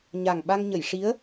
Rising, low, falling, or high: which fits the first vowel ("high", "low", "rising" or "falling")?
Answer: low